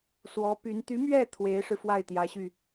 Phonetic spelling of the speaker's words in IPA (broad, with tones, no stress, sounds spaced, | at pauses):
s w ɔ˧˥ p y˧˥ n t̪ y˧˥ m ɥ ɛ˥˩ t̪ʰ w e˧˥ ɪ̯ ʂ ɻ̩˧ f w a˥˩ ɪ̯ t̪ j ä˧˥ ɕ y˧